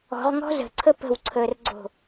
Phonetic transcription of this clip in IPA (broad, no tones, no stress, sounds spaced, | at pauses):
ɔ̤ ʁ ŋ ɔ̤ z ə̤ ǀʰ ə p ə̤ w ǀʰ əː r ɡ͡ǀ o̤